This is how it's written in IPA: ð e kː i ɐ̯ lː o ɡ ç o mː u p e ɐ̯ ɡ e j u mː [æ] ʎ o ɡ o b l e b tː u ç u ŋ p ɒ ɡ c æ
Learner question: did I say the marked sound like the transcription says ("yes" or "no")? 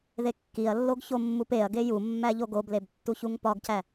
yes